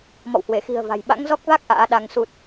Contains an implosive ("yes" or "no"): yes